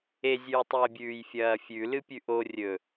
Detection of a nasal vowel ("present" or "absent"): absent